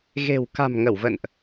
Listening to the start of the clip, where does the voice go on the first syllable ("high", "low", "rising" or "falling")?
low